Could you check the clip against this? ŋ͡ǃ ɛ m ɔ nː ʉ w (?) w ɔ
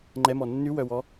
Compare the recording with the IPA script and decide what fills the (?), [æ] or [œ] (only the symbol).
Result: œ